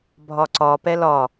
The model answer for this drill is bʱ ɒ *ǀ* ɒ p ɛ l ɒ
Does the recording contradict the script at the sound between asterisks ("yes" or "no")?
no